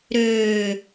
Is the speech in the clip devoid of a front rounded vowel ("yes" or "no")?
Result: no